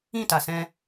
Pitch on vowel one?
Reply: falling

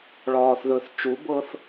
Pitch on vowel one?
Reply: low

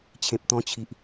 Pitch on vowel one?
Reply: low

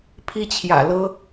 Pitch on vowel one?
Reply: high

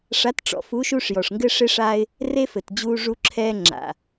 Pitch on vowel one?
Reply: rising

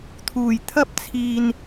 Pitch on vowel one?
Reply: low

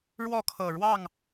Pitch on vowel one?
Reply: falling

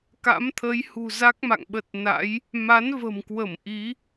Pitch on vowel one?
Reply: rising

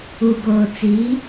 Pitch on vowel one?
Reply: low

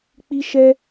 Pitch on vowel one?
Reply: high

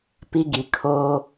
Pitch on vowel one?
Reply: high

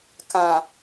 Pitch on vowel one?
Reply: low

